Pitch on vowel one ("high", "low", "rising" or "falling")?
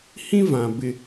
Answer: high